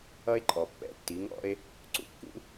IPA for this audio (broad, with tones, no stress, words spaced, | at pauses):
ʌ˥e̯ ǃʼɔ˩pːɛ̰˥ tːi˩˥ŋɔ̰˥e̯ | ǀṵ˥kːṵ˥